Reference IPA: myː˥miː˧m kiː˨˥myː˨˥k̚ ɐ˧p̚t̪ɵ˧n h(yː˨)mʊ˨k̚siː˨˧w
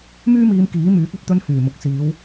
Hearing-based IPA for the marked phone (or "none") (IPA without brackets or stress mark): yː˨˩